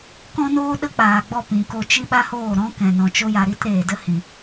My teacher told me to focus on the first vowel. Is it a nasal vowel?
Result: yes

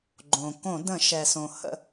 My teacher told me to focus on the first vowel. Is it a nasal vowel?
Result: yes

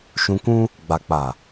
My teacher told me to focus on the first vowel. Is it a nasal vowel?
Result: yes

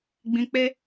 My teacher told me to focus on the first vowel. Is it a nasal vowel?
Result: yes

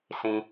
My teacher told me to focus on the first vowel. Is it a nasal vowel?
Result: yes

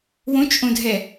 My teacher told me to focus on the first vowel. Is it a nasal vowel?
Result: yes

